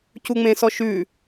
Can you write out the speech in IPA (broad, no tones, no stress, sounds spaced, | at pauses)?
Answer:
c u ŋ͡m ẽ s ɔ ʃ ʉ